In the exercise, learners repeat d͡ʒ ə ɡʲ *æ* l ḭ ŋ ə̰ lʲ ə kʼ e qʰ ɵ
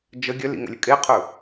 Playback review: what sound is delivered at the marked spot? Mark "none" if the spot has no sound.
œ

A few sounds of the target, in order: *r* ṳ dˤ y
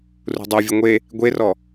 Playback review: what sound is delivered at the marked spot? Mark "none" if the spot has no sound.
r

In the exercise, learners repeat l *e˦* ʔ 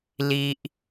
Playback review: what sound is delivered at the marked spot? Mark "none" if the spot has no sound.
i˦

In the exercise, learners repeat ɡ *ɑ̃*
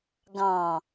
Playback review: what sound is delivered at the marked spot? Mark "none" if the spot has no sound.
ɑ̃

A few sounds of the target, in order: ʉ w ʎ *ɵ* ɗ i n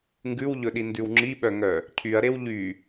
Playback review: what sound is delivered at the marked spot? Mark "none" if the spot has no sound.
ɵ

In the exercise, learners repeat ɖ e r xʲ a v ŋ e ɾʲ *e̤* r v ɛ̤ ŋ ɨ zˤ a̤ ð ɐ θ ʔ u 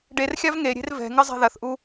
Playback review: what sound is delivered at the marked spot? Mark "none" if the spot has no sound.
e̤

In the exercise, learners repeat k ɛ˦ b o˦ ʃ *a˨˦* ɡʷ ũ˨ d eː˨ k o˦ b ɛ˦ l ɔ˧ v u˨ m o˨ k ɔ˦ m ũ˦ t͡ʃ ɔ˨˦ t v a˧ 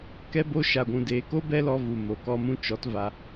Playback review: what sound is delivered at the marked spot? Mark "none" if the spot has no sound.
a˨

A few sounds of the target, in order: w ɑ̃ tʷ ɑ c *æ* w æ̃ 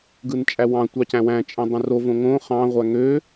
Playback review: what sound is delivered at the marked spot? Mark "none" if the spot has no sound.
æ̃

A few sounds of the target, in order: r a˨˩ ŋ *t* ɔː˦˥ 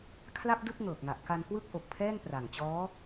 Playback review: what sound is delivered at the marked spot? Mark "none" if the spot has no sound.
t͡ɕ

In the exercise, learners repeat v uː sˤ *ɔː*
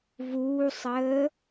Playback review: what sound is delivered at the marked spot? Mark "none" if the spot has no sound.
əː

